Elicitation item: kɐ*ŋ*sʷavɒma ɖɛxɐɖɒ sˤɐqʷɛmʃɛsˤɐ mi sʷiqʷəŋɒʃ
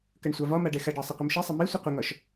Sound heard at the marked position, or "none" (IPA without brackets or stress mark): ɳ